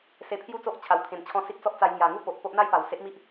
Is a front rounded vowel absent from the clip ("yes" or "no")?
yes